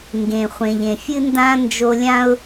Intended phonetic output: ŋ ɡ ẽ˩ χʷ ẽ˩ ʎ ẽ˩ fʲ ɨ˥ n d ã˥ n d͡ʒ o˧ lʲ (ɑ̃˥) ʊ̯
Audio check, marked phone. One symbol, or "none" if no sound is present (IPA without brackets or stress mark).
ã˥